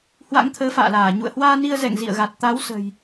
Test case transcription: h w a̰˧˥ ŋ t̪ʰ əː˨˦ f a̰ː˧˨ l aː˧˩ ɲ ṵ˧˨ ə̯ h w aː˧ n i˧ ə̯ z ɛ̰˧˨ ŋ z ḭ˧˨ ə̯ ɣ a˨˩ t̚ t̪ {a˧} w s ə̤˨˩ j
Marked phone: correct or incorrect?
incorrect